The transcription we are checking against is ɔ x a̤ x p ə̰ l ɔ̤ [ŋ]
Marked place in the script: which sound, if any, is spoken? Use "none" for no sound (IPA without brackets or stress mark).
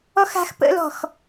x